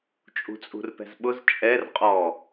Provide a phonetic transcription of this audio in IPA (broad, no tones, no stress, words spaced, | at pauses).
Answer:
t͡ʃʼṳt͡sʼṳrpɛ̤zɓʊz t͡ʃʼɛrqʼɔ